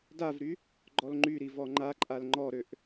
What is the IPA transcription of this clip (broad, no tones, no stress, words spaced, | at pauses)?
davɾy | ɡ͡ǃɔlŋ͡ǃyɾi vɔŋ͡ǃaǃʼal ŋ͡ǃɔɾøʔ